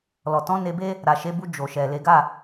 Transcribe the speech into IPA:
lɔ˨ tɔ̃˨˦ ne˧be˦ | ɾa˨ʃe˨˦bu˧ d͡ʒo˨ʃɛ˨le˨˦ ɡa˦˨

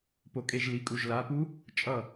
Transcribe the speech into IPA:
po˩kʼe˧˩ʒli˩˧˩kʼu˩ʒ la˩˧˩pu˦˥ | t͡ʃʼʌ˧˩

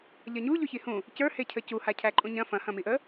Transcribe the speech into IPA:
ʎɐɲu ʎoçihũ | cə˞ hecʰəcu hacʰæǃʼũɲɐ̃ fɐ̃ hɐ̃miʔə

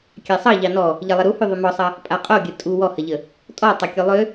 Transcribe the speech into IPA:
kʲasˤɑ ʎɑnɔ | ʎɐlˠəɾuhʉ ðˤʉmɔsˤɐ | pʼaqʼoɡʲə tʼu wɔhɐʎə | tʼɔtˤɐ kʲolˠø

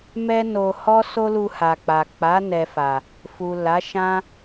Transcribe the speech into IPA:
mɛ˦no˧ hɔ˦ so˦lu˧ha˨k͡pa˨ k͡pa˨˦ nɛ˧fa˨ | fu˨ la˨˦ʃã˦

